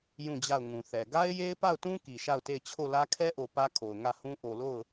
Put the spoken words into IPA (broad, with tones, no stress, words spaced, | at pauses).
jũ˦˨d͡ʑa˦˨ʊ̯ŋũ˨θɛ˨ ɡa˦ɪ̯je˦ɪ̯pa˦˨ʊ̯tũ˦ ki˨ʃa˦˨ʊ̯te˦˨ɪ̯ t͡ɕʰo˦˨lä˦ kʰɛ˦ʔo˨ pä˦kʰo˨ʊ̯ ŋä˦˨hũ˦ ʔo˨lo˦˨ʊ̯